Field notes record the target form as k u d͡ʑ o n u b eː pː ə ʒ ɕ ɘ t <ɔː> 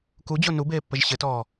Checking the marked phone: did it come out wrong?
no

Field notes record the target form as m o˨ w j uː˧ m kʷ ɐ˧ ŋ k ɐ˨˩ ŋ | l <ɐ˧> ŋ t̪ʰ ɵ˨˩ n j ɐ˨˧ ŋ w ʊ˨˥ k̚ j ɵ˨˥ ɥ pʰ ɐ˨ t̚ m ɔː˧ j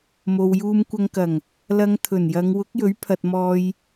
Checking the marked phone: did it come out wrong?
no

